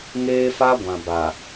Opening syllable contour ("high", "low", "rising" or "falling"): high